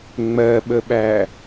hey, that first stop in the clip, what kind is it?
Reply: implosive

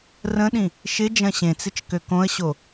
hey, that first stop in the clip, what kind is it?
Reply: implosive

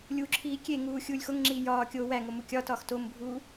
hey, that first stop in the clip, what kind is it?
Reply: click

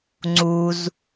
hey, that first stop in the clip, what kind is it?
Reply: click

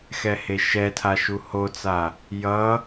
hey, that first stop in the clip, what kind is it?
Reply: aspirated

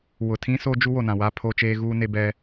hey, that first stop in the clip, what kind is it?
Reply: aspirated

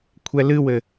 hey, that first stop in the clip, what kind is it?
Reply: aspirated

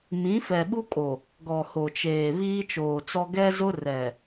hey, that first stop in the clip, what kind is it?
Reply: implosive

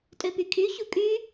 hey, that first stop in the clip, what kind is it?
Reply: ejective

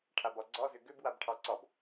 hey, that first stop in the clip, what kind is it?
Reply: aspirated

